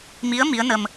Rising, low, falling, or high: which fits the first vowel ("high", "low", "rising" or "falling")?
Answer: rising